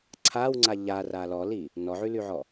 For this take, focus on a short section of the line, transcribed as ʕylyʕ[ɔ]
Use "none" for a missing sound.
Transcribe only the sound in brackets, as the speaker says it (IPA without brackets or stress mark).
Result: ɔ